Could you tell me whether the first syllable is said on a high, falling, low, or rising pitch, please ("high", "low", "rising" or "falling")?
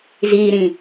low